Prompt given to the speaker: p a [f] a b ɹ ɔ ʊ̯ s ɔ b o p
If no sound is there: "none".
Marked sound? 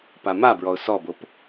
m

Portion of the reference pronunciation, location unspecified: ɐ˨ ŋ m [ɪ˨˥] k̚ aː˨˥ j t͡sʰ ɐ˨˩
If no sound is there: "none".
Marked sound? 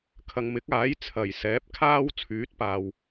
ɪ˨˥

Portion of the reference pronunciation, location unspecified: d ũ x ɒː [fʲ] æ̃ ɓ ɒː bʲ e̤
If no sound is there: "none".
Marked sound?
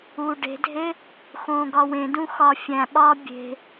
fʲ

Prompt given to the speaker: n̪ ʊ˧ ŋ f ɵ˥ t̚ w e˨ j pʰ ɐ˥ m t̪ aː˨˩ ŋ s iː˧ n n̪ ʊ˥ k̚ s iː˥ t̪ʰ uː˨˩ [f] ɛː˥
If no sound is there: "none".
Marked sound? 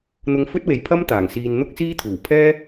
pʰ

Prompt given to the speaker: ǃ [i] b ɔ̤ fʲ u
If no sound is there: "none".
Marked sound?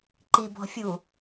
i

